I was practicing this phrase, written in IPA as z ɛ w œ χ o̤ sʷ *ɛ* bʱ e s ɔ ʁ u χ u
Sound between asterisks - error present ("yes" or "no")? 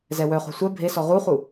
no